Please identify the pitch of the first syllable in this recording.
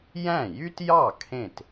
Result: falling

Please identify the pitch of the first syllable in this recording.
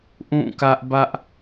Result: falling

